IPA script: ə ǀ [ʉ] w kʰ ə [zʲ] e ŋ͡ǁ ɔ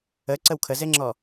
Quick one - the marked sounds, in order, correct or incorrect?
incorrect, incorrect

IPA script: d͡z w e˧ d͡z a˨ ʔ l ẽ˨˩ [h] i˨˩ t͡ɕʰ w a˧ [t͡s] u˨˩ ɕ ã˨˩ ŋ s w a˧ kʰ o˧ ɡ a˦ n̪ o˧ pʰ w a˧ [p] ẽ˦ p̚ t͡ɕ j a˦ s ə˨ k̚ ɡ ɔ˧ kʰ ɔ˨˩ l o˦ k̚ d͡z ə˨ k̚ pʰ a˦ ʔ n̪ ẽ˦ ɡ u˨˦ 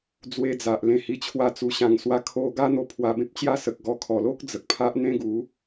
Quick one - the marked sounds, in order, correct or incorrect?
correct, correct, incorrect

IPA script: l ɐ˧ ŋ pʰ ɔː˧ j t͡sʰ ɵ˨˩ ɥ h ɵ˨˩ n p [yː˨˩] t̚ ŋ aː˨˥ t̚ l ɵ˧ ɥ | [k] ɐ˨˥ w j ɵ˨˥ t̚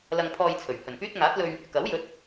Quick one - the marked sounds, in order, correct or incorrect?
incorrect, correct

